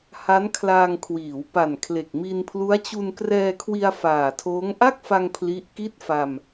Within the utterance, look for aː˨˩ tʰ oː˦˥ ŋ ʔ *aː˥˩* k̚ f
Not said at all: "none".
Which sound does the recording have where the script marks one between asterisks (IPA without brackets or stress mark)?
a˥˩